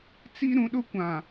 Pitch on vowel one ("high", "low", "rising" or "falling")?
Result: high